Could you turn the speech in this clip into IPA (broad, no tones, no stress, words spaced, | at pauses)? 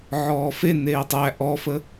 ʕɔːfe neːtˤæ ʔɔfə